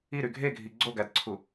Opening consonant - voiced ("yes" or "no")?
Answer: yes